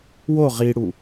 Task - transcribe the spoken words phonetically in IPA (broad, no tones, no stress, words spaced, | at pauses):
wo ʁiɽu